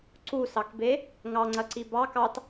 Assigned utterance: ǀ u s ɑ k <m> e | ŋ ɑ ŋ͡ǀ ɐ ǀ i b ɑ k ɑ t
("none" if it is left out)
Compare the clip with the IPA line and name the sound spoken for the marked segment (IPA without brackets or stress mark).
b